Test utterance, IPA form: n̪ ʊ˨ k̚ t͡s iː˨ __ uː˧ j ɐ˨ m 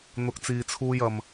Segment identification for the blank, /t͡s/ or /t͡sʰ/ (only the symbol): t͡sʰ